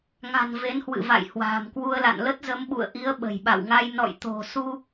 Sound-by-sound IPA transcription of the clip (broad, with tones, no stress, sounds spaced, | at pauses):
ŋ a̤˨˩ n v e˨˦ n h w ɨ̰˧˨ v a̰˧˨ j h w a̤ː˨˩ m k w u˧ ə̯ l a̰˧˨ n l ə˦˥ t̚ z ə˨˦ m ɓ ṵ˧˨ ə̯ ʔ i˨˦ ə̯ ɓ ə̤˨˩ j ɓ a̰˧˨ w ŋ a˧ j n ɔ̰˧˨ j t̪ o̤˨˩ s u˧